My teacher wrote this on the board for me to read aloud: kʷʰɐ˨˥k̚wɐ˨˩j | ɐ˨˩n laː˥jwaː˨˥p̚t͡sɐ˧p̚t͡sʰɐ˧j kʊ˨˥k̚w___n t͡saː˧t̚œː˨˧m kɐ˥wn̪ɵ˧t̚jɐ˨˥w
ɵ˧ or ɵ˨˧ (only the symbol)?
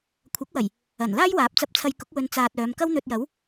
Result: ɵ˧